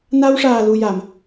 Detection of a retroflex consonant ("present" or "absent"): present